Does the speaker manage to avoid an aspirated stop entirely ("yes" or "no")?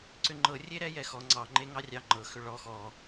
yes